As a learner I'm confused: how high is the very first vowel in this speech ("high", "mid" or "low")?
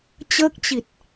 mid